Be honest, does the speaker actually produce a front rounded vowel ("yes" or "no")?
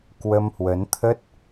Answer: no